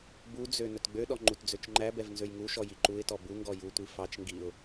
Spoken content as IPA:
b u d͡z ø n ɵ t ɡ͡b ø ɗ ɔ ŋ͡ǃ u t d͡z ø t͡ʃ ŋ͡ǃ æ b ɛ v n z ø j ŋ u ʃ ɔ j i ǃ u ɪ̯ t ɔ b u ŋ ɡ ɔ j u tʷ i f ɑ t͡ʃ ŋ ɡ i ʊ̯

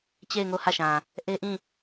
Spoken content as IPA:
t͡ɕ e˦˨ ɪ̯ ŋ o˦˨ h ä˦˨ ʃ ã˨ | ʔ e˦ ʔ ĩ˦˨

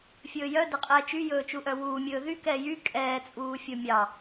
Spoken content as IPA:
fʲ ɵː j œ d ɛ qʼ ɛː t͡ʃ y j ɵː t͡ʃ u ʔ œ w uː mʲ ɵː ð y k ɛː j y kʼ ɛː t͡sʼ uː fʲ o mʲ ɑ

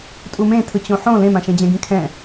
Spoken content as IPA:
tʼ u m ẽ tʰ ɯ t͡ɕ õ ħ õ l ẽ m ã ʃ ẽ d͡ʑ ɛ̃ ɡ ĩ kʰ ɛ̃

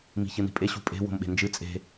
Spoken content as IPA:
m i̤ ç ɨ n i̤ pʼ e ɕ ṳ pʼ e̤ w o̤ m ɓ e̤ n d͡ʒ ɨ t͡sʼ e̤

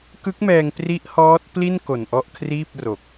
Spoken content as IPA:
k ɯ˦˥ k̚ m ɛː˧ ŋ p r i˦˥ ʔ h ɔː˦˥ t̚ p l i˥˩ n k o˨˩ n ʔ ɔ˥˩ ʔ kʰ r iː˥˩ p̚ r o˨˩ k̚

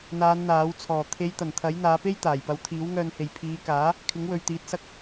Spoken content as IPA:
n̪ aː˨˧ n n̪ aː˨˥ w t͡sʰ ɔː˨˩ t̪ʰ e˨˧ j t̪ ɐ˨˩ n t̪ʰ ɐ˨˥ j n̪ aː˨˧ p e˥ j t̪ aː˨˩ j p ɐ˨˧ w t̪ʰ iː˨˥ w ŋ œː˧ n h e˨ j pʰ iː˨˧ k aː˨˥ | kʰ ɪ˨˥ ŋ w ɵ˨ ɥ t̪ iː˨˥ t̚ s ɐ˧ k̚

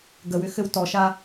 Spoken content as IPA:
ɡ ə w ʏ x ɘ w t ɔ ʃ a

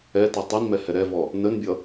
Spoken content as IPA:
ɛ t ɔ tˤ i n m ɛ h ɛ ɾ ɛ v ɔ | n ə n bʲ ʌ

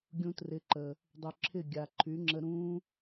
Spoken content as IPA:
ɡʲ ũ˧ t r ɪ˨˦ ǃ ə˨ | dˤ y˨ ǁʰ ɪ˦˨ ɡʲ a˨ ǃʰ y˨˦ ŋ͡ǁ ə˧ ɾ ũ˦

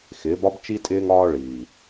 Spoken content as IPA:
x ɪː˨˦ b ɒ˦ b t͡ʃ i˦ tʼ ɪː˧ ŋ ɒː˧ ɭ iː˨

